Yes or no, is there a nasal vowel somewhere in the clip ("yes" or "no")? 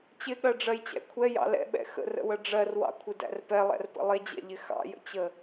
no